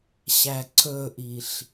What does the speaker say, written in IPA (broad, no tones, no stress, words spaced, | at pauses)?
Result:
ɕæǀɵʔiɬ